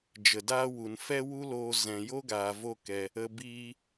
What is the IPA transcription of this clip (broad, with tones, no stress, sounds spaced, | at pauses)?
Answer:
d͡ʒ ə˨ d aː˦ w u˨ n f ɛ˦ w u˦ l oː˧ z ɛ̃˨ j o˦ ɡ aː˨ v o˦ k ɛ˧ | ə˧ b iː˧